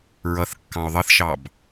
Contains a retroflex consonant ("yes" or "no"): no